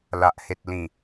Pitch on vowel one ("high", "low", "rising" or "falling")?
low